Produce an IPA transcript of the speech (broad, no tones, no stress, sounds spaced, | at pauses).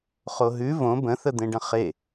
χ o ɦ ʉ v õ b ə̃ θ ə d̪ ẽ ɖ ə̃ χ e